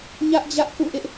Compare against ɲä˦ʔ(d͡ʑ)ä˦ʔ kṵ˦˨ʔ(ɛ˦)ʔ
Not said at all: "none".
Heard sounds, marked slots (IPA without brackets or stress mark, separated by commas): d͡ʑ, ɪ˦